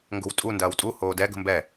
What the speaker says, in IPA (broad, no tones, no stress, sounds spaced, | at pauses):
ŋ ɡ o̤ w tʼ u n d ɐː w tʼ u h oː d ɛ ɡ ə̤ m b ɛ